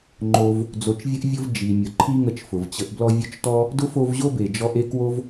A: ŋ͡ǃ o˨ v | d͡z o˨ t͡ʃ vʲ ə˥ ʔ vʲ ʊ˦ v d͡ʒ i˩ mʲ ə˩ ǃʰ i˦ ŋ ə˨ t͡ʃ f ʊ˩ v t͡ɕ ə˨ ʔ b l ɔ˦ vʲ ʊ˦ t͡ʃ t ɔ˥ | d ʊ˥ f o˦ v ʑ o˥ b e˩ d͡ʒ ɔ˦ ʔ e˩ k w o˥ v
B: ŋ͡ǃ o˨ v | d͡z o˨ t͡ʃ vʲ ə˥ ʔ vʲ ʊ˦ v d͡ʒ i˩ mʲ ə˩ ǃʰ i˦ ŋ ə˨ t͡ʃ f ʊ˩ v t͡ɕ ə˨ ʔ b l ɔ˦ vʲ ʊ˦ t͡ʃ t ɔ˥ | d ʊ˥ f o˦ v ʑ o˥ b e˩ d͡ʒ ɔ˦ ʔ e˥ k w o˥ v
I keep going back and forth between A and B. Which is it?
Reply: B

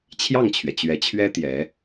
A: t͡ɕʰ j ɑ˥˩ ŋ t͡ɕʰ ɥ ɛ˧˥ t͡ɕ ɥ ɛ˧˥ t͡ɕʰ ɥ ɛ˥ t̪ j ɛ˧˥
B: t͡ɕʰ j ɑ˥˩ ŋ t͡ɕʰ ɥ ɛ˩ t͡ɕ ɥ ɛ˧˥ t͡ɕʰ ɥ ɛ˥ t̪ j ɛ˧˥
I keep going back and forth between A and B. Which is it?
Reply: B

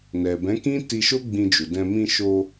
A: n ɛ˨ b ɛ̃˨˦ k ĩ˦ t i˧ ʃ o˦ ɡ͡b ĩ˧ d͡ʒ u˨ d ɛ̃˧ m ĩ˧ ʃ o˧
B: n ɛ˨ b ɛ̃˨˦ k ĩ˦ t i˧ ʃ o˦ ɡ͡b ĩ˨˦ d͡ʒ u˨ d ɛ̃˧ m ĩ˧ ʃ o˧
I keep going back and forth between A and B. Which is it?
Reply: A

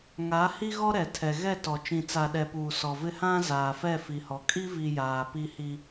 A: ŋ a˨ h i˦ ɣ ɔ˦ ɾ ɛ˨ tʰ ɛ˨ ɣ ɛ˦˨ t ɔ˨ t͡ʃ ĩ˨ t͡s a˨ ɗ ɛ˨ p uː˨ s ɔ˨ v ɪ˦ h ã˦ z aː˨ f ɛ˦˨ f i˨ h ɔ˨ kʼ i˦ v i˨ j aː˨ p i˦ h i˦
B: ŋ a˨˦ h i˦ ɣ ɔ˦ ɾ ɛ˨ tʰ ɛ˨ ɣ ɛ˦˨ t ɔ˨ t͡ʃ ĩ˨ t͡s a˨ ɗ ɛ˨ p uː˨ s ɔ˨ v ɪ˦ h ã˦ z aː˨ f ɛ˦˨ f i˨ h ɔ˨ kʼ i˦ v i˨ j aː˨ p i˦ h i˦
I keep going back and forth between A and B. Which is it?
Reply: B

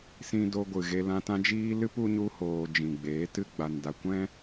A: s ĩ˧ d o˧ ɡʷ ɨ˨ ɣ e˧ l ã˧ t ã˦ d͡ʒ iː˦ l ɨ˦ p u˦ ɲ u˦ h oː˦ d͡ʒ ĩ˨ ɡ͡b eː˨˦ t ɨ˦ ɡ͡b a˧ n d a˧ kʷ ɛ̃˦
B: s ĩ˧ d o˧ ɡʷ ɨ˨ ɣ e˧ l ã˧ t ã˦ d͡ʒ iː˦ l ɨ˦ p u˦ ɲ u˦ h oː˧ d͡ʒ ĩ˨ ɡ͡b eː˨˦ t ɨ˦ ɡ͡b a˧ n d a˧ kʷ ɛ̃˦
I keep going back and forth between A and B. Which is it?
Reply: B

